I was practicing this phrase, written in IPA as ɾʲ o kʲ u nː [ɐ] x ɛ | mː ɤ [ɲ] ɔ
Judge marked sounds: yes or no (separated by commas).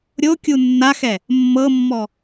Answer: no, no